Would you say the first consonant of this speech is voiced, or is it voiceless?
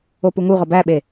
voiceless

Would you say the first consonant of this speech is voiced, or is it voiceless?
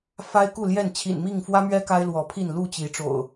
voiceless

